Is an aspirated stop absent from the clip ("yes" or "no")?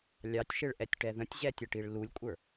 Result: yes